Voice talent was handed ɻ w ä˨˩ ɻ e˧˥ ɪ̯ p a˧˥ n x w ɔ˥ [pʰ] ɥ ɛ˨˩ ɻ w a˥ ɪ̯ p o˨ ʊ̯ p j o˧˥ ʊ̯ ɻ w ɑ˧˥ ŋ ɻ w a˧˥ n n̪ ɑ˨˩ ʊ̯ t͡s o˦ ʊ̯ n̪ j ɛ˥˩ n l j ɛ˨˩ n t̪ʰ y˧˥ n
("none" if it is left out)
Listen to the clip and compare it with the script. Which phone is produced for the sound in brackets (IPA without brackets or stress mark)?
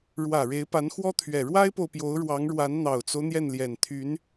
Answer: t̪ʰ